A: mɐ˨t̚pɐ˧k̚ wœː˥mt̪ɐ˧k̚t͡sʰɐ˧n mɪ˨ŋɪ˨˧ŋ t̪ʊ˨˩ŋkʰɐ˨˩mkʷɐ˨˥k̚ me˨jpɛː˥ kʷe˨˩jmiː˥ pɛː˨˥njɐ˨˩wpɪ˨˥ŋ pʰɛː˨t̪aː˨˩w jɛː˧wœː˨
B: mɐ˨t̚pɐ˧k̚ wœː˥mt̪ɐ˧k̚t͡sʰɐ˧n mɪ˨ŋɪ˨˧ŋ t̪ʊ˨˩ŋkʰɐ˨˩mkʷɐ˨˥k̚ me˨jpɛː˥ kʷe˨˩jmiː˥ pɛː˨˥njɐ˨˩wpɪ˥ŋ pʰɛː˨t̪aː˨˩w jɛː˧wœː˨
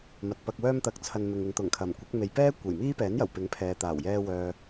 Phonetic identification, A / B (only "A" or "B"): A